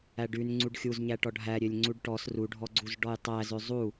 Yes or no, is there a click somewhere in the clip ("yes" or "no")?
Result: yes